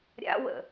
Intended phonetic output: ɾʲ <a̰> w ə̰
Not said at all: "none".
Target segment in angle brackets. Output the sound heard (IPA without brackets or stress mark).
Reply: a̰